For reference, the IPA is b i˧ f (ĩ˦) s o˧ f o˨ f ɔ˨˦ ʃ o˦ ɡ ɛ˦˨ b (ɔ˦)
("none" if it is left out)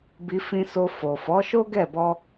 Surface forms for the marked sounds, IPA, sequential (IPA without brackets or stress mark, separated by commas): ĩ˧, ɔ˧